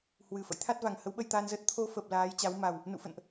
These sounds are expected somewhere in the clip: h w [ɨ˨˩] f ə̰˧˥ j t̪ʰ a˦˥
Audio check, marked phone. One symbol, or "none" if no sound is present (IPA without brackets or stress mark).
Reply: ɨ˨˩